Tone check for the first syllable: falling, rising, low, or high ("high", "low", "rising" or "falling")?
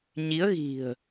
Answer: rising